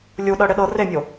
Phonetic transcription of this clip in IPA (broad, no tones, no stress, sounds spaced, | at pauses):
lʲ u ɗ ɤ ɽ ɪ ɗ ɤ r e mʲ o